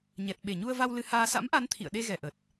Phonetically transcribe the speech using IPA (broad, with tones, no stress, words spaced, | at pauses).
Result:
ɲɛ˨˩t̚ ɓe˧˩ɲu˧ə̯va˧w lɨ˧haː˧ sa̰˧˥mʔa˨˦n t̪ʰḭ˧˨ə̯ɗe˧ɣɛ˧˩ʔə˨˩t̚